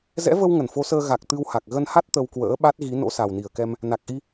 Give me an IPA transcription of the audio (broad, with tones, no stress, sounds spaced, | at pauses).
z ɛ̰˧˥ v ə˧ w ŋ ə˧˩ n f o˨˦ s əː˧ ɣ a˨˩ k̚ t̪ ɨ˧ w h a˨˩ k̚ ɣ ə˧ n h a˦˥ t̚ t̪ ə˧ w k w ə̰ː˧˥ ɓ a˦˥ t̚ ɣ i˨˦ n o̰˧˥ s a˨˩ w n i˧˩ ə̯ k ɛ˧ m | n a˨˩ k̚ ʔ i˧